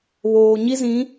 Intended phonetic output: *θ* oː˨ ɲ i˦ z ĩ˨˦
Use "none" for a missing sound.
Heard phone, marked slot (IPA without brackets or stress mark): β